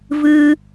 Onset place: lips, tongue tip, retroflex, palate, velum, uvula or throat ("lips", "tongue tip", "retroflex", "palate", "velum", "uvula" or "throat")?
lips